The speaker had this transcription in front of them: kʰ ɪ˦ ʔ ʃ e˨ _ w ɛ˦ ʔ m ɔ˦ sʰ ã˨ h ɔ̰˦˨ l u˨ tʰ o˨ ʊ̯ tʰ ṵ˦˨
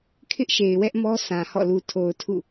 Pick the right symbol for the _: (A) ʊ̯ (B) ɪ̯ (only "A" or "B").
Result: B